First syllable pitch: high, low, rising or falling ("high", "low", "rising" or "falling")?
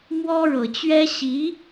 high